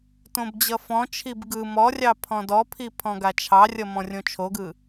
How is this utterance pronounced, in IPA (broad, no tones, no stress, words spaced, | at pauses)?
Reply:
tõbd͡ʑʌfɔ̃t͡ʃʰib ɡɯ mɔrʲɑ pʰɔ̃dɔpʰi pʰɔ̃ɡat͡ʃʰɑrʲʌ mɔ̃rʲõt͡ʃʰoɡɯ